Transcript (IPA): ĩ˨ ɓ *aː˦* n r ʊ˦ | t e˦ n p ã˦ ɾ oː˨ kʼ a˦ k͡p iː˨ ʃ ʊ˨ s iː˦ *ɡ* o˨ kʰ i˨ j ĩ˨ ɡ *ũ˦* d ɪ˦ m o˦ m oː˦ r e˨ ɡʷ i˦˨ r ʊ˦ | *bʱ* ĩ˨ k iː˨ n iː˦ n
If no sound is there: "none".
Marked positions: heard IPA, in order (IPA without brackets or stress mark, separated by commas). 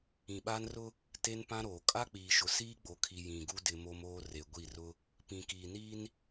aː˦, ɡ͡b, u˦, p